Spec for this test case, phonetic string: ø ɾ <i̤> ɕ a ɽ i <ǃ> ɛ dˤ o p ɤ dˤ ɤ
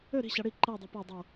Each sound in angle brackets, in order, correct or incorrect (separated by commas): correct, correct